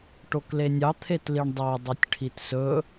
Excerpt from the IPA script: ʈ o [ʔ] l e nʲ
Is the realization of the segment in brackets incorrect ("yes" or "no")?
yes